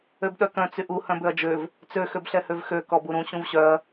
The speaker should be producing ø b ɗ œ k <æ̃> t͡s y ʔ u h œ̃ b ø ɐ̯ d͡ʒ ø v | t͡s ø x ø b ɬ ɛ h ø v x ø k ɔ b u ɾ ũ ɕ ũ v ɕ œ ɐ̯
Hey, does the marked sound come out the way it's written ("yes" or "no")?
no